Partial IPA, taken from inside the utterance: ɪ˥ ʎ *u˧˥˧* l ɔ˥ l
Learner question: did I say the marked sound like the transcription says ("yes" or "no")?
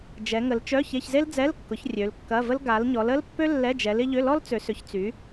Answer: no